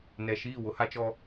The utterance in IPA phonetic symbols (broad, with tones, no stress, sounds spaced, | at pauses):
n ɛ˨ ʃ iː˦˨ w ʊ˦ h a˦ t͡ʃ ɔ˦